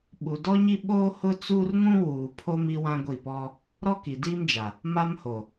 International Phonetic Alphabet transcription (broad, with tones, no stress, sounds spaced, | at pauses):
ɓ u˨ d ɔ˦ ɲ i˦ ɓ oː˦ h ʊ˦ t͡s uː˦ r ŋ ũ˦ w uː˨ pʰ o˦ m i˦ w ã˦ ɡʷ i˦˨ p ɔ˦ | ɾ ɔ˦ k i˨ d iː˦ m d͡ʒ a˨ | m a˦ m h o˨